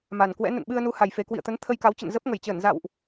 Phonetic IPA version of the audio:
m a˨˩ n k w ɛ̰˧˥ n ə̰˧˨ n ɓ ɨ˧ ə̯ n u˨˦ h a˨˩ j f e˨˩ k w ḭ˧˨ ə̯ t̪ ə˨˦ n t̪ʰ ə˧ j k a˨˦ w t͡ɕ ə̰˧˨ n z ə˦˥ p̚ ŋ ə˧˩ j t͡ɕ əː˧˩ n z a̰˧˨ w ʔ

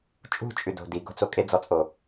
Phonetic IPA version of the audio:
t͡ʃʼ ṳ t͡ʃʼ ʉ d o̤ d i ɡ o̤ t͡s o kʼ e d͡z ɔ t͡sʼ o

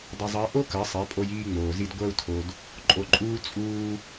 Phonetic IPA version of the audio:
dˤ ʌ˧ zˤ ʌ˧˥ i̯ ʔ o˥ k ɜ˩˧ sˤ ɛ˩˧ pʼ o˧ j iː˧ ŋ͡m oː˩ z i˧ d ɡʷ ɜ˧ u̯ tʰ o˩ d | ǃʼ o˧ ǃʼ uː˥ t͡sʼ uː˧

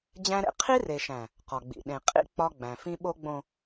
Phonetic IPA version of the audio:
d͡ʑ æ̃˦ ɾ ḛ˦ qʰ i˦ r e˨ ʃ æ̃˨ | q ɒ˨ ɡ͡b ḭ˨ ɗ ẽ˨ qʼ ḭ˦ k͡p ɒ˦ ɡ͡b æ̃˨ f ĩ˦ ɓ o˦ ɡ͡b õ˨

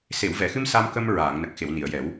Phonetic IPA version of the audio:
s e˨˩˨ w v ɛ˨˩˨ x ɨ˧ m s a˧ m k ə˧ m ɹ aː˨˩˨ ŋ n ə˨˩ k̚ x e˨˩˨ w n i˨˩˨ ə̯ j ɛ˨˩˦ w

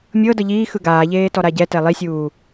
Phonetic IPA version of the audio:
mʲ ɤ d ɤ ʎ iː x ɯ ɡ aː ʎ eː t ɔ ɾ a ɟ ɛ t ɛ lˠ i sʲ uː

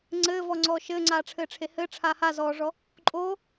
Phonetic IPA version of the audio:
ŋ͡ǀ ɘː v ɔ ŋ͡ǀ ɔː ʃ ɘː ŋ͡ǀ aː ʈ͡ʂʰ ɘː ʈ͡ʂʰ e h ɘ ʈ͡ʂʰ a h a z ɔː ʐ ɔ | ǃʼ oː

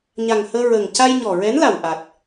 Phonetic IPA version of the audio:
ɲ a˨˩ ŋ h əː˧ ɹ əː˨˩ ŋ c a˧ j ɲ ɔ˨˩ ɹ ɛ˧˥ n l a˨˩ w ʔ a˨˩ t̚

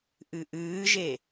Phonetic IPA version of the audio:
ʔ ɨ ʔ ɨː ʒ e

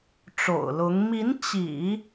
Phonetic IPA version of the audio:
ʈ͡ʂ o̰˨˩ ʊ̯ l ʊ˧˥ ŋ m i˧˥ n t͡ɕ ḭ˨˩˦

